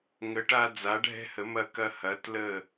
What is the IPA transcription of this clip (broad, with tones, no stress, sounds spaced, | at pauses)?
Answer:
ŋ ə˩˧ ʈ a˧ d͡z a˩˧ ɖʱ ɛ̤˧ h ə˩˧ m ɐ˧˩ k ɐ˧ h ɐ˩˧ t l ə˧˩